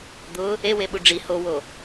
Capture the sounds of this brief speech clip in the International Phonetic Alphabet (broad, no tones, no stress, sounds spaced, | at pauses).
d̪ ʊ | e w e ɓ u ɖ͡ʐ i h o w o